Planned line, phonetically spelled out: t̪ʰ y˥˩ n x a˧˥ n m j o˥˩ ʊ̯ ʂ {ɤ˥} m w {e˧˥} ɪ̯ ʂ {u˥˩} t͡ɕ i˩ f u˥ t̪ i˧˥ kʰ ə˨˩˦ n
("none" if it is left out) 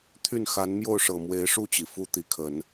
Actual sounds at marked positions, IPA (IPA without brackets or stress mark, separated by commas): ɤ˨˩, e˧˥, u˥˩